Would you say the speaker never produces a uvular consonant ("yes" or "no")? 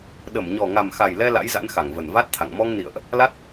yes